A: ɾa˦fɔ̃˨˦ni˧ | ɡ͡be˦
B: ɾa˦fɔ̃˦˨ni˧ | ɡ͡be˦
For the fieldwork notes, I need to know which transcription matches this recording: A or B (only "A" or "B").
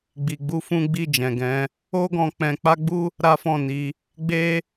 B